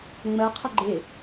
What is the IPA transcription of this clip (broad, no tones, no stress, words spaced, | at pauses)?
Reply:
ŋ͡mɜ qʰəɡ͡ǃe